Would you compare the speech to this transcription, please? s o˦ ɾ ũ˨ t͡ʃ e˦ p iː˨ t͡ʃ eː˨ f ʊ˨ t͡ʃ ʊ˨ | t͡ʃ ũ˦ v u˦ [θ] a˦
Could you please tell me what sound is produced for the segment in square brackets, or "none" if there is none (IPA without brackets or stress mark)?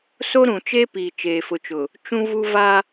v